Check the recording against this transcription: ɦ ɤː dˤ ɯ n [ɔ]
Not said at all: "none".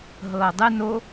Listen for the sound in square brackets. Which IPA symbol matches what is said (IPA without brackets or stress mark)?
o